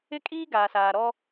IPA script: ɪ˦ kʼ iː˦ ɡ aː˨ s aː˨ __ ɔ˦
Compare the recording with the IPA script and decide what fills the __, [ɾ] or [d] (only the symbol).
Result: ɾ